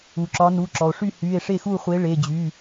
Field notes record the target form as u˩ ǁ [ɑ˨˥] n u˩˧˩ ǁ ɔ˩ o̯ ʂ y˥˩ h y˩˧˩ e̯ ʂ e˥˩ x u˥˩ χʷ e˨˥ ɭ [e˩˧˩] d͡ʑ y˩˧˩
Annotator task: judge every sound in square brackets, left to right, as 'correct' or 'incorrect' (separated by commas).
incorrect, correct